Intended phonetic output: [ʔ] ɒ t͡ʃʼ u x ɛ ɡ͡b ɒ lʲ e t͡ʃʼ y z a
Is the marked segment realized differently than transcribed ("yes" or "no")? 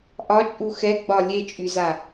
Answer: no